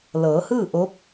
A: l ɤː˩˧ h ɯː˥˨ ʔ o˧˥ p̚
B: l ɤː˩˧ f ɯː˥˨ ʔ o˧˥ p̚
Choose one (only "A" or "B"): A